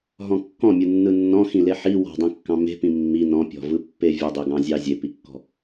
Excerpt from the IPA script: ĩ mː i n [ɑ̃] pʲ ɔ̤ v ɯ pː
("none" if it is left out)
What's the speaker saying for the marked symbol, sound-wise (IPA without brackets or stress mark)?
ɔ̃